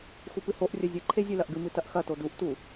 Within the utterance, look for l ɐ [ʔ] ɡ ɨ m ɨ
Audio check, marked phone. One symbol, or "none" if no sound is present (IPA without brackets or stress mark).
ʔ